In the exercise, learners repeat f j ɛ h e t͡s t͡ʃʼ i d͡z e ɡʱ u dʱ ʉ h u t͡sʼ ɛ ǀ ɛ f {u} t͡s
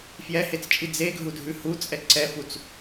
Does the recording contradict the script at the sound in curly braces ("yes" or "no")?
no